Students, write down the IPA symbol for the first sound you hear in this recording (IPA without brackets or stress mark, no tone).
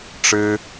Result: ʈ͡ʂ